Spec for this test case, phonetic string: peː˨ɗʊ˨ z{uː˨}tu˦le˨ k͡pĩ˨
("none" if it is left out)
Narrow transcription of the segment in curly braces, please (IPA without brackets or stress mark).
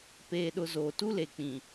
oː˨